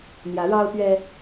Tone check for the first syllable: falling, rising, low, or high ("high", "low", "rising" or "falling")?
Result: rising